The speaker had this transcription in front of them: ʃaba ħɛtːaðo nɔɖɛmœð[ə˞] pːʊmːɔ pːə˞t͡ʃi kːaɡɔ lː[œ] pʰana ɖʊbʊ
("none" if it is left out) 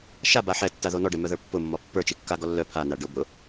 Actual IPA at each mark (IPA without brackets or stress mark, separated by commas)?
ə˞, œ